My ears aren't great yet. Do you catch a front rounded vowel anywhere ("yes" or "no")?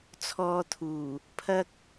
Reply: no